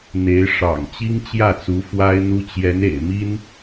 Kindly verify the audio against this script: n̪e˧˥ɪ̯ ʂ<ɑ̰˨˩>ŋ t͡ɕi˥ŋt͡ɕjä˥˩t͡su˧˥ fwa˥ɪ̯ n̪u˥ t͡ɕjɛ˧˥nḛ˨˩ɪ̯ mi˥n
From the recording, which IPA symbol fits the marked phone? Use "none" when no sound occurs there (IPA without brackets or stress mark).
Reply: ɑ̰˨˩